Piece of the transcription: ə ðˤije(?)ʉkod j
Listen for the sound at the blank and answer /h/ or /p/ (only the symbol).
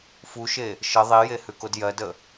h